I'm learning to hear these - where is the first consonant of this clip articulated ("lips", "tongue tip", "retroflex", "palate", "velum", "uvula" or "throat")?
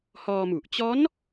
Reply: throat